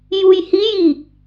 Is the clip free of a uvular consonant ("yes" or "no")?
yes